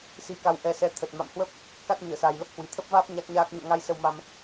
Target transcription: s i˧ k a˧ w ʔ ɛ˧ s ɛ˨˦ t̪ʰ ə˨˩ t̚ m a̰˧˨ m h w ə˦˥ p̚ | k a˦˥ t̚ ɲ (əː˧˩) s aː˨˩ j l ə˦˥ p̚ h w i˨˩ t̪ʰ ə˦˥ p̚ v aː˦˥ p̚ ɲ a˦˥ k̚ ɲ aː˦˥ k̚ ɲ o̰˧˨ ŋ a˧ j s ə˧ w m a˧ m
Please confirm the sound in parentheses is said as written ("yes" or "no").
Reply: yes